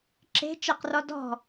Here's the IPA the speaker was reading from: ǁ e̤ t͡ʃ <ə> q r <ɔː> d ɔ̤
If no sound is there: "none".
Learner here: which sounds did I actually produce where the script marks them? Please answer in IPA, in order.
ə, ɔ

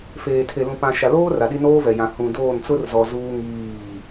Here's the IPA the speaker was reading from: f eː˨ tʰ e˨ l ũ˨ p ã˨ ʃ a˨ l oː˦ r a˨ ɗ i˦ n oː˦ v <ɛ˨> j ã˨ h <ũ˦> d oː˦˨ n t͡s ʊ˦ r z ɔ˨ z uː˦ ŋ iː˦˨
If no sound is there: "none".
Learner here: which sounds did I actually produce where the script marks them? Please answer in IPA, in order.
ɛ˨, ũ˨

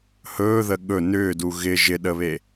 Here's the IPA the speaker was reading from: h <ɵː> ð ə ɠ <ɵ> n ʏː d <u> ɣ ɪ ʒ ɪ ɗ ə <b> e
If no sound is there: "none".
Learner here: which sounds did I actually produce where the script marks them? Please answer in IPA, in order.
ɵː, ɵ, u, β

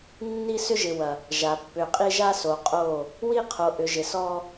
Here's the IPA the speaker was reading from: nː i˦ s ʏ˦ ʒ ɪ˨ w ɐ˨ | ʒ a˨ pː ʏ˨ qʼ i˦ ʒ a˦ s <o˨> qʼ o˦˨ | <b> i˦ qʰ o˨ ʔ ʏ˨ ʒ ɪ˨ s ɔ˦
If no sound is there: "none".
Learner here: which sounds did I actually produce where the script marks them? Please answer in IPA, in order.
o˨, w

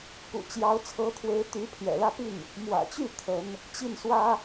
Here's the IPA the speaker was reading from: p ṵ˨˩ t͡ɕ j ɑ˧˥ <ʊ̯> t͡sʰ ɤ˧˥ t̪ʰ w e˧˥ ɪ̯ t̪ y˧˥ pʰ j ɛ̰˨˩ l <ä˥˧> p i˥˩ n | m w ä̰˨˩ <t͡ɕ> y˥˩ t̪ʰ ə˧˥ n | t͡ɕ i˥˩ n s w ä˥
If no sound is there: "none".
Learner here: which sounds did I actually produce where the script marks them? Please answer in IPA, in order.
ʊ̯, ä˥˧, t͡ɕ

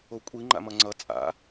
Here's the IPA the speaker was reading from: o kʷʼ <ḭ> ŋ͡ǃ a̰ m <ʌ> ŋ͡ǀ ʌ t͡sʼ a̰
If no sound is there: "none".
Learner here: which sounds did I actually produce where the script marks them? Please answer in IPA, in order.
i, ʌ

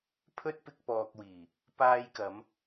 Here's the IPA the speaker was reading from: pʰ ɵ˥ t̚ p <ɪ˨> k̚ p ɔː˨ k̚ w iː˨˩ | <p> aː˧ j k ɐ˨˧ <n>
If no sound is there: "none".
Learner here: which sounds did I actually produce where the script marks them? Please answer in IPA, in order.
ɪ˧, p, m

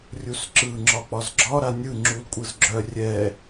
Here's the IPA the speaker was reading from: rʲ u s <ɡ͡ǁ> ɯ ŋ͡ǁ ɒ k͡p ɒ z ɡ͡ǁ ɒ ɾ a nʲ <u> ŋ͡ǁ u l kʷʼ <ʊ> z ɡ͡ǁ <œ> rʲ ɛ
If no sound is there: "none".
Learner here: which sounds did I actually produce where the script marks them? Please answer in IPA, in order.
ǁ, ɯ, ɯ, œ

